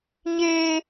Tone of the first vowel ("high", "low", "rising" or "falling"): high